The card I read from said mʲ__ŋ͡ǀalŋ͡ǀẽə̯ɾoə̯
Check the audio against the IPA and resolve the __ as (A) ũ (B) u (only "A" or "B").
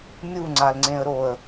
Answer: B